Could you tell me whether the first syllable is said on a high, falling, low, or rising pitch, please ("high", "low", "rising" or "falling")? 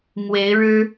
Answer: rising